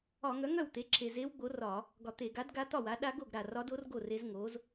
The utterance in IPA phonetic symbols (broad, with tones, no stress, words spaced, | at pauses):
ɒ˧˩˧ŋœ˩˥ ŋœ˥˩wt̪e˩˥ ǁʰe˨˩ze˧˥wɡ͡bo˩˥ rɒ˧˩˧ | ɡɒ˧˩˧t̪e˧˩˧ ɡa˩˥d ɡa˧˥t̪ɒ˥˩wa˩˥ ɗa˧˥ɡo˥˩ɡ ɾa˨˩rɒ˧˥do˧˥r ɡo˥˩re˧˥z ŋo˩˥z